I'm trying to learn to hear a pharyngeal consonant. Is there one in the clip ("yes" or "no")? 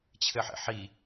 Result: yes